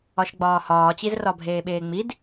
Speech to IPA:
ɒʃɡ͡bɒːhɒːt͡ɕiz rɒbʱeːɓeːŋ͡mid

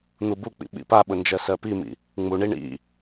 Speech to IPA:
n̪ubuk͡pḭ ɓḭpaɓʊ nd͡ʒɜsɜpimḭ | ŋ͡muɳi ɳḭ

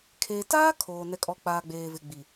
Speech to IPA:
kʰeː˨taː˦ kʰoː˨ nɛ˨kʼɔ˨k͡paː˨ ɡ͡beː˨vɪ˨ ɡ͡bi˨

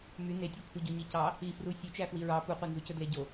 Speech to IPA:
my netʲokʷʰiɟo ɲicɑ | ifru sʲɵt͡ʃæ fwiɹɑ puqʷenzucɵ dleɟo

